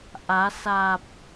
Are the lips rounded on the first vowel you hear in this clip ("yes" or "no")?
no